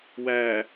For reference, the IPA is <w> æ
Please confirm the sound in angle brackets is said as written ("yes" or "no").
yes